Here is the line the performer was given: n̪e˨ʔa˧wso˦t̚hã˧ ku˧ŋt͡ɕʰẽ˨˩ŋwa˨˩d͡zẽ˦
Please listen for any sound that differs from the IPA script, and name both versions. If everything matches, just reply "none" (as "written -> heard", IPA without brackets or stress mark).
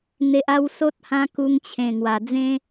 none